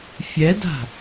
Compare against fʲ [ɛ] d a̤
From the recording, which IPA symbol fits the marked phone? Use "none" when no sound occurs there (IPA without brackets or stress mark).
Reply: ɛ